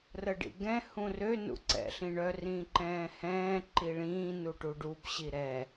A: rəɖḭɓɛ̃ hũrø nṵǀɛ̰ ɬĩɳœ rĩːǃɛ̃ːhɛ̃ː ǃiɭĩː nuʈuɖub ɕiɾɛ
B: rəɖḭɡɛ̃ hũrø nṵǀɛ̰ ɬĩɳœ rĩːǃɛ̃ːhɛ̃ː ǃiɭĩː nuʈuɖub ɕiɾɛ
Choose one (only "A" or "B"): B